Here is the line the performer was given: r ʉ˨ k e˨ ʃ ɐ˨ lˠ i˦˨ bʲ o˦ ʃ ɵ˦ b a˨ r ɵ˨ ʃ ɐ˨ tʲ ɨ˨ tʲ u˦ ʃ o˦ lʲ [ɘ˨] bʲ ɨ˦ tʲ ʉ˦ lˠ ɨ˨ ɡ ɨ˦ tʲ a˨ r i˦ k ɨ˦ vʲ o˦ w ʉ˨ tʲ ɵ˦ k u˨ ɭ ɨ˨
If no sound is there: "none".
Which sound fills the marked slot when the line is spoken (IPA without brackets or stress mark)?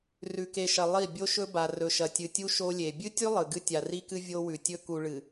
e˨